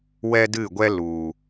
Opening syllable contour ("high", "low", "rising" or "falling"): high